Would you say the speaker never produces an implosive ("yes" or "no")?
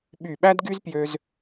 no